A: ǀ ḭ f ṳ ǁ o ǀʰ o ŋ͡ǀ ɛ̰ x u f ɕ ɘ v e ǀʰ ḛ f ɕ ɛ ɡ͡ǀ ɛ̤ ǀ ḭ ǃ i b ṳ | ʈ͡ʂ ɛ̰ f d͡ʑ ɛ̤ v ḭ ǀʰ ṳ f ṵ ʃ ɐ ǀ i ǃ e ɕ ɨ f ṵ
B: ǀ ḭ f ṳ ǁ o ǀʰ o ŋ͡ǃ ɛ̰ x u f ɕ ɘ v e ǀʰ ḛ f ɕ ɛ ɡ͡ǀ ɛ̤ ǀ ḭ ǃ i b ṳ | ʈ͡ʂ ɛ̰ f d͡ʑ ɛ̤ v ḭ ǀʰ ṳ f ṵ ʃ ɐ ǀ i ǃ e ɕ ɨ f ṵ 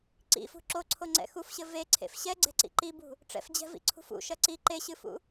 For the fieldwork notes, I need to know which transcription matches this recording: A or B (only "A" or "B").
A